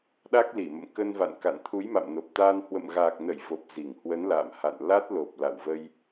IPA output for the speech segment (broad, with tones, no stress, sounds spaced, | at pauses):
ɗ a˦˥ k̚ l i˧˩ m ə̰˧˨ m k ə˧ n v a̰˧˨ n k a̰˧˨ n t̪ʰ u˨˦ j m a̰˧˨ m n o˨˩ p̚ t̪ aː˧ n h w ə̰˧˨ m ɣ aː˨˩ k̚ n ə˧˩ j v o˨˩ p̚ z i˧˩ ŋ h w ə˨˦ n l a̰ː˧˨ m h a̰˧˨ n l a˦˥ t̚ l o˨˩ p̚ l a̰˧˨ w v ə˧ j